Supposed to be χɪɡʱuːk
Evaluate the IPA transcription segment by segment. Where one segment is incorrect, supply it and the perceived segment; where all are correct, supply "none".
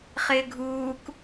ɪ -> ɪː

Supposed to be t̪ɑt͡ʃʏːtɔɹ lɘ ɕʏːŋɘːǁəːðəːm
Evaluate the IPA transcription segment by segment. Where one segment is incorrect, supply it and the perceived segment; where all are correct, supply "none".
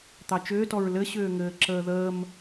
none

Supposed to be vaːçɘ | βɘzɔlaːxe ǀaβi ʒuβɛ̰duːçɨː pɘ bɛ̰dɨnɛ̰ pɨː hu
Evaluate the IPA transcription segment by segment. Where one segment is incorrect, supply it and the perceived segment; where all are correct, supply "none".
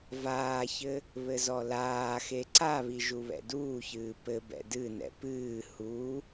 none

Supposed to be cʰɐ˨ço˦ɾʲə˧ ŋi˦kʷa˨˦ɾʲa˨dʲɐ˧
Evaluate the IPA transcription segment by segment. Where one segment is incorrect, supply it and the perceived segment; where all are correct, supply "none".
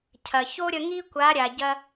dʲ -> ɟ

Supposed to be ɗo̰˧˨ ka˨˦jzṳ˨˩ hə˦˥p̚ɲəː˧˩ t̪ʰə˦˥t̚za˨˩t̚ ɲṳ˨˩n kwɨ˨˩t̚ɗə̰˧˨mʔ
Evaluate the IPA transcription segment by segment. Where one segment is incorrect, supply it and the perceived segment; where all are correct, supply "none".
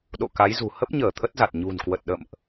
ɨ˨˩ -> ə˨˩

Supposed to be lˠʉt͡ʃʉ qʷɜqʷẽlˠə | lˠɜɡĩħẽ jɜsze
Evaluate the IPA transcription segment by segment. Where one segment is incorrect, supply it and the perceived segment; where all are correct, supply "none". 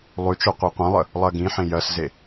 none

